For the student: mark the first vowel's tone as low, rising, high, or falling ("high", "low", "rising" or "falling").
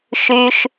low